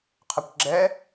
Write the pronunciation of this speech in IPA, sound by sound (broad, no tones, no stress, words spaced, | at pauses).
qʰʌkʷɡ͡ǁɛ